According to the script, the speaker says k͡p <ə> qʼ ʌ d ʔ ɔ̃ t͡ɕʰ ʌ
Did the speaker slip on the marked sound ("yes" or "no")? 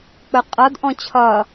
no